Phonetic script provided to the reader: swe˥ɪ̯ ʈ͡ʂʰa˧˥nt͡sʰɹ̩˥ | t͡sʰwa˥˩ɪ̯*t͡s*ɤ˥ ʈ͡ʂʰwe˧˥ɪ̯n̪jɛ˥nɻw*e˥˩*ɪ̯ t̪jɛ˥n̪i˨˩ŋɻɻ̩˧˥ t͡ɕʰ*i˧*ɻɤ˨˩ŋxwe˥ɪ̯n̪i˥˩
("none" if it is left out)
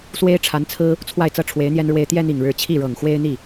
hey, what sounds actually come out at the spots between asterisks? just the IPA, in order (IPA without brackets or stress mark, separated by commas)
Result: t͡s, e˥, i˥˩